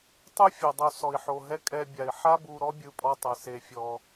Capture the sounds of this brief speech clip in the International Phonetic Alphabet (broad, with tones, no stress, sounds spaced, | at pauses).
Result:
tˤ ɯ˦ fʲ ɔ˨ dˤ o˧ s ɔ˨ i̯ ħ o˨ ɦ ɛ˦ kʼ ɛ˧ bʲ a˨ i̯ ħ a˦ b u˧ ɾ ɔ˦ bʲ ɯ˧ pʼ ɔ˧ tˤ ɛ˨ s e˧ fʲ ɔ˧